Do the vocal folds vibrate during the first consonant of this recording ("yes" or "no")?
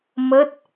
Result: yes